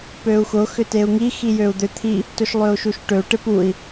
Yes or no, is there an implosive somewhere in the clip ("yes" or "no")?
no